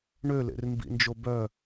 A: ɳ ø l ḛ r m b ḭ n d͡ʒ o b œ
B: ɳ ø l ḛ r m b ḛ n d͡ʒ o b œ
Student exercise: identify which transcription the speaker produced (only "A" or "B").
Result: A